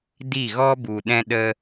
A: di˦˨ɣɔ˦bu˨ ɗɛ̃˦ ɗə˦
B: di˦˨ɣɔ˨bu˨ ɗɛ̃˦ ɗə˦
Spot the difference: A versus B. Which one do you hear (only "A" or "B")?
A